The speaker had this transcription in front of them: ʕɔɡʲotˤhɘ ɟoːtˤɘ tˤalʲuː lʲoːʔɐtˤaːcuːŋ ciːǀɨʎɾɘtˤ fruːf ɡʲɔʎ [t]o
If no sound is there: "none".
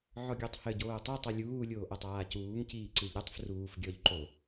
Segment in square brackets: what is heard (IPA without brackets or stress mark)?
ǃ